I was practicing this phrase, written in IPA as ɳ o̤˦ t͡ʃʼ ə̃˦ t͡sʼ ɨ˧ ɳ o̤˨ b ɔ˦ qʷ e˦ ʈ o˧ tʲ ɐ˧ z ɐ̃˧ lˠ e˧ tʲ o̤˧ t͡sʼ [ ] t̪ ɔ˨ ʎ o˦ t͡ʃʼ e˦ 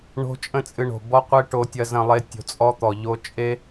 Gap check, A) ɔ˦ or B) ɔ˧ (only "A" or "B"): A